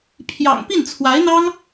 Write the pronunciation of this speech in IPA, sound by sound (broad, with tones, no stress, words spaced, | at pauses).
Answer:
pʰjɑ̰˨˩ŋ pi˥˩nt͡sʰwa˧˥ɪ̯n̪ɑ˥ŋ